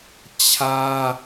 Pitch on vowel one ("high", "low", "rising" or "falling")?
high